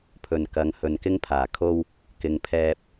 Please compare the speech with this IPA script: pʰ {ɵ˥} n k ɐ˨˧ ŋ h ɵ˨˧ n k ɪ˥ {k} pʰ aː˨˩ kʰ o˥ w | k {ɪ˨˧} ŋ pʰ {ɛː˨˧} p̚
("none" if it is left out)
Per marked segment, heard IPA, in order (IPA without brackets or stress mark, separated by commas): ɵ˨˩, ŋ, ɪ˨˧, ɛː˧